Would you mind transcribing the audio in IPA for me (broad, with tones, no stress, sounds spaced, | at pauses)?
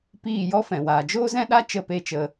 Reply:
p iː˦˨ j ɔ˦ f ɛ̃˨ w aː˨ d͡ʒ oː˦ z ɛ̃˦ ɗ a˦ t͡ʃ ə˦˨ p e˦ t͡ʃ ə˧